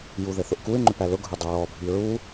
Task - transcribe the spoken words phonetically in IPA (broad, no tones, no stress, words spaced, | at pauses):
juðɘθʊʔkuɪ̯ ŋ͡ǃʏpælʊ ɡʱʊdˤʊɹɔ bʱiɹu